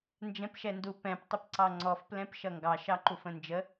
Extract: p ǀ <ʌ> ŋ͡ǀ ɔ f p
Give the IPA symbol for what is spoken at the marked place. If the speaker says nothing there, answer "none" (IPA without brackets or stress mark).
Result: ɑ